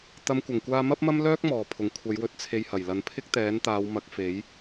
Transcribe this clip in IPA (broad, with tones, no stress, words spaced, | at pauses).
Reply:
t̪ɐ˨˧mkʷɐ˨˩ŋkʷaː˧ mɐ˥p̚mɐ˥mlœː˥k̚ mɔː˨˩pʰʊ˨˩ŋ kʷʰɐ˨˧jwɵ˧t̚ t͡sʰe˧jhɐ˨˩jlɐ˨˧n pʰɪ˥k̚ t̪ɛː˨˥nt̪aː˨˧wmɐ˨˥k̚ fe˨˥j